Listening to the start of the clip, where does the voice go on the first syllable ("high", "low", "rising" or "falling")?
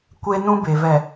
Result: high